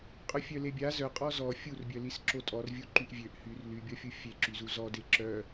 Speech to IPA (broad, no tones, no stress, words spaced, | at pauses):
qʼœfʲœlebʲa zœqʼɔ zɔ fʲurbʲœlisǁo tʼɔrvʲu ǃyʔvʲøʔ hyr lybʲɔfʲu fʲe ǁyzuzɔde ǁœ